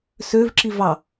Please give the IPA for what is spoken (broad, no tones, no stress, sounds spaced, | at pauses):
s ø v ǁ i v ɑ